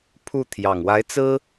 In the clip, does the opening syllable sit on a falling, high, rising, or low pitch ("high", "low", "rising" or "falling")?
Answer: falling